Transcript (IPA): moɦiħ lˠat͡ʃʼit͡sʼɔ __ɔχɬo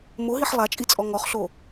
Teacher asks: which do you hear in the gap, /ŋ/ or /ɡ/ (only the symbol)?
ŋ